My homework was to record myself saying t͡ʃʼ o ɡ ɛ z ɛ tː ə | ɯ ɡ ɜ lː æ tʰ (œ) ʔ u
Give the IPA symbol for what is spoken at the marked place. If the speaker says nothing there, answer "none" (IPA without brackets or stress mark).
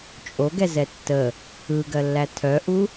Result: œ